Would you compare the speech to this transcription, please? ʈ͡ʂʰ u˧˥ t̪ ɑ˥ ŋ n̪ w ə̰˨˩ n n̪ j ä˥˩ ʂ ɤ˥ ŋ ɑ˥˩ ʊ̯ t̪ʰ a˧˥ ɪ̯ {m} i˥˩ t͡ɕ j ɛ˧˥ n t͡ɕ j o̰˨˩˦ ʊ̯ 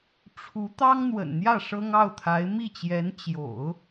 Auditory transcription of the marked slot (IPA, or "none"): m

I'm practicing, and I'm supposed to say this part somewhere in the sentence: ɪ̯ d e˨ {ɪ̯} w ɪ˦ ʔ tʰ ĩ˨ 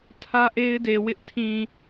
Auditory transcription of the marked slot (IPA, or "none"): none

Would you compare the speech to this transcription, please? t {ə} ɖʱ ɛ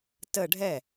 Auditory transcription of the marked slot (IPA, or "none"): ə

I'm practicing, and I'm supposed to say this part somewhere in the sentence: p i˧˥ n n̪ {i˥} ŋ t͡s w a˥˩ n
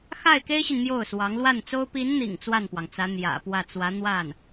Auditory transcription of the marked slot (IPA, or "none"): ḭ˨˩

